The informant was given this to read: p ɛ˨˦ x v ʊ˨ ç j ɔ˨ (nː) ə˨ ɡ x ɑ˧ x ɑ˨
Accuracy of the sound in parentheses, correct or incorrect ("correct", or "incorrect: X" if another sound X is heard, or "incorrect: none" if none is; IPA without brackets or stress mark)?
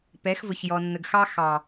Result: correct